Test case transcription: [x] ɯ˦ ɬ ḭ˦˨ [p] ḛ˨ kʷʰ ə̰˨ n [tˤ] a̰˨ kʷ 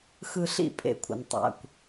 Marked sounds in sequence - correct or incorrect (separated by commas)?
correct, incorrect, correct